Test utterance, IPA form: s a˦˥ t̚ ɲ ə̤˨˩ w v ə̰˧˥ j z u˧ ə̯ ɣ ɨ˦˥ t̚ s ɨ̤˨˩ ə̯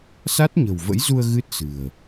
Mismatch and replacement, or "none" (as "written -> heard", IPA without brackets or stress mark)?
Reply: none